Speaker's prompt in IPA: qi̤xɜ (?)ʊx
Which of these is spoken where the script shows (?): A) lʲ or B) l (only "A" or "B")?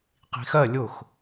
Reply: A